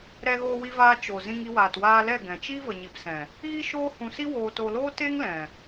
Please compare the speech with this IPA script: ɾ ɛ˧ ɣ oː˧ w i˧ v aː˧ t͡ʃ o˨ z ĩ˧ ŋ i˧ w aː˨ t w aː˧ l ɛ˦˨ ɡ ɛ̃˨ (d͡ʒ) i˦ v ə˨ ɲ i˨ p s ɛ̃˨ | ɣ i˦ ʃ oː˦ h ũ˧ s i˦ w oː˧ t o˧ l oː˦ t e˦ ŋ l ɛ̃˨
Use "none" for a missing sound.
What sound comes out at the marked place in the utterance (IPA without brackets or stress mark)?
t͡ʃ